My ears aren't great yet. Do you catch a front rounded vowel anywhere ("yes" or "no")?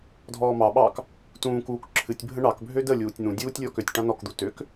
yes